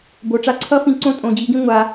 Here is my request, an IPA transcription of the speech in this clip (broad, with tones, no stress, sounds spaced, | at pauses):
b o˨ ʈ͡ʂ a˦ ǀʰ ʌ˦ f ĩ˧ ǀ õ˦ tʼ õ˨ d͡ʑ i˨˦ ɡ ĩ˦ ŋʷ a˧